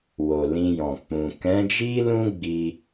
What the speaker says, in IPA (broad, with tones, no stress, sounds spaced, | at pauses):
w o˨ l ĩ˧ j ɔ̃˨ k͡p ũ˨ k ɛ̃˨˦ d͡ʒ i˦ l ũ˦ ɡ͡b i˧